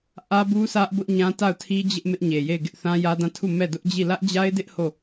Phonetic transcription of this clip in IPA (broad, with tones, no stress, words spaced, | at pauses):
ʔä˦bu˦sä˦ʔbʊ˦ʔ ɲã˦ta˦˨ʊ̯tʰi˦d͡ʑɪ˦ʔ mɪ˦ʔɲe˨je˦˨ɪ̯ ɡɪ˦ʔθã˦jä˦dã˦˨ tʰu˦˨mɛ˦˨ dʊ˦ʔd͡ʑi˦˨ lä˦ʔd͡ʑa˦ɪ̯dɪ˦ʔ ho˦˨